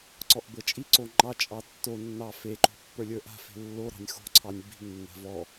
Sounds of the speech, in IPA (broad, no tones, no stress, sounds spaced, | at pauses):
ǀ ɔ ʔ b ɤ t͡ʃʼ i ǀ o ŋ͡ǃ ɑ t͡ʃʼ ɑ tː o nː ɑ f e ǃ o̤ pː ə˞ lʲ ə˞ ʔ a̤ f e̤ lː o ɾ ɑ̤ nʲ x o̤ ǀʰ ɑ nʲ b i̤ ŋ nː a̤ v ɔ